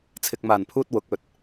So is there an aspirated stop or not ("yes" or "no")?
yes